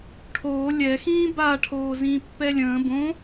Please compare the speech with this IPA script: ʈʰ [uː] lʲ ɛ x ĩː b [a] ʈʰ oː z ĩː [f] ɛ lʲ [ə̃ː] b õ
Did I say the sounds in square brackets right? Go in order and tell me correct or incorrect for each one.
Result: incorrect, correct, incorrect, correct

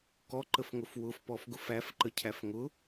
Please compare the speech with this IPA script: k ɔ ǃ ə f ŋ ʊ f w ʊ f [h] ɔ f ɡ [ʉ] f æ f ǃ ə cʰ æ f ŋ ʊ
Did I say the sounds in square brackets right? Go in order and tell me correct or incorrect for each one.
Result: incorrect, incorrect

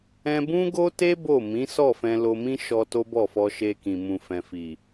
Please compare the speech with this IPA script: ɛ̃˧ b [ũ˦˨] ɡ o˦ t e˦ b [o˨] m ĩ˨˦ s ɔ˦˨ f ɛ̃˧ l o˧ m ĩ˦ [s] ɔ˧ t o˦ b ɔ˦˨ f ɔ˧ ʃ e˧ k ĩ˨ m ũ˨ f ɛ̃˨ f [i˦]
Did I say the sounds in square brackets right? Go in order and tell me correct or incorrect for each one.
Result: incorrect, incorrect, incorrect, incorrect

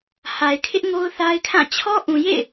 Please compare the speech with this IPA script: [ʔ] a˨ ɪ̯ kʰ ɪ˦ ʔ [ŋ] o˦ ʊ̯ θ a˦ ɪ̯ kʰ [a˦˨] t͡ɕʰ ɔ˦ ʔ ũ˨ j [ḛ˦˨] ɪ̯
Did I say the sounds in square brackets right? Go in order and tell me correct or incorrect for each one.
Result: incorrect, correct, incorrect, correct

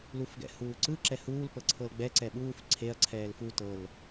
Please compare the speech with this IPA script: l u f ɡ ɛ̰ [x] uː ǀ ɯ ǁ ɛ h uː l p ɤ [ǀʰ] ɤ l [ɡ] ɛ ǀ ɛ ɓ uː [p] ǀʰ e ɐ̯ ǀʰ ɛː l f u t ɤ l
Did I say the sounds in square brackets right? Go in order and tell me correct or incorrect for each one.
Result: incorrect, correct, incorrect, incorrect

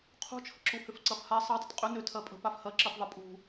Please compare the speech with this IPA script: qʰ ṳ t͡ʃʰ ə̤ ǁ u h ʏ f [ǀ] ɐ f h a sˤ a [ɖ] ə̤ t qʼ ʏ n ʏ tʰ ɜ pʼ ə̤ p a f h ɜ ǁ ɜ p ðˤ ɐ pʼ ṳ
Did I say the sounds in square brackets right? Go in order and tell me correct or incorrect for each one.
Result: correct, incorrect

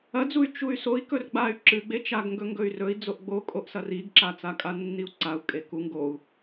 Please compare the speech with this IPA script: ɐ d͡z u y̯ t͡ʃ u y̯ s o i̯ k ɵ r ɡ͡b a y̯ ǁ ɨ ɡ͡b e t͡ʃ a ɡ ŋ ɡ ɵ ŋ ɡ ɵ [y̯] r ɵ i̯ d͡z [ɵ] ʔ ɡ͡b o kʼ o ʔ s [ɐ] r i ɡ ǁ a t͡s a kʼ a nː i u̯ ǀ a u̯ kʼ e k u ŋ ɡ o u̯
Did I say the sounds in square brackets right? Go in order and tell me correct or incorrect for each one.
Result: correct, incorrect, correct

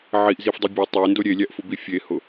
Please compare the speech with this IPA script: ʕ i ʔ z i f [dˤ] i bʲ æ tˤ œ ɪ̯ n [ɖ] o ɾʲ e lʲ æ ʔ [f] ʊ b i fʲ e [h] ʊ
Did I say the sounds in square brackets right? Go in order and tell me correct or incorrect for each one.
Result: correct, incorrect, correct, correct

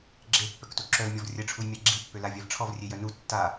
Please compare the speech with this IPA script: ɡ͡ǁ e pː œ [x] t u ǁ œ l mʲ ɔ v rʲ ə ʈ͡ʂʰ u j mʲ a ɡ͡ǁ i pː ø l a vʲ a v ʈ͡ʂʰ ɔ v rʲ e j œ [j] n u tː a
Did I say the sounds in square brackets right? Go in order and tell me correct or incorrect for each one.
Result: incorrect, incorrect

